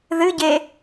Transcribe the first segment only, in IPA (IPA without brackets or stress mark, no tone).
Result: ð